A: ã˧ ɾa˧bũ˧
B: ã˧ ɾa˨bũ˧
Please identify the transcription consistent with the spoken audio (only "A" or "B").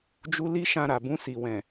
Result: B